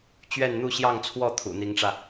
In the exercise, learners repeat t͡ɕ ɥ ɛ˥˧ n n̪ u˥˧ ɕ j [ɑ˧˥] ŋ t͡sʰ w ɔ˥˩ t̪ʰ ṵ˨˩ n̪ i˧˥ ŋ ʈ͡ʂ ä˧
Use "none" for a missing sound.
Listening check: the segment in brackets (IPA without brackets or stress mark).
ɑ˥˧